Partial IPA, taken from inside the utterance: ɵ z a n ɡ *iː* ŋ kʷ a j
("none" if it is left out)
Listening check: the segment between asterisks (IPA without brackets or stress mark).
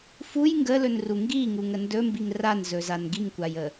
i